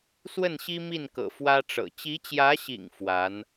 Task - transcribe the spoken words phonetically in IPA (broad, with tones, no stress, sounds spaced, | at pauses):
s w ə˥˩ n ɕ i˥ m i˥˩ n k ɤ̰˨˩ f w ä˥ ʈ͡ʂ ɤ̰˨˩ t͡ɕ i˧˥ t͡ɕ j ä˧˥ ɕ ḭ˨˩ ŋ f w a˧˥ n